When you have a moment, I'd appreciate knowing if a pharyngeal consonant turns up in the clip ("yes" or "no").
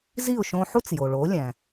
yes